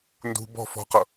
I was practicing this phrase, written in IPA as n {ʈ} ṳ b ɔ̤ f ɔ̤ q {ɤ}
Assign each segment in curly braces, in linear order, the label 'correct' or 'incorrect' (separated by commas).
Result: incorrect, correct